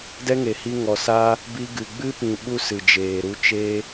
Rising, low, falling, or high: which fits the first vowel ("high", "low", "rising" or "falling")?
high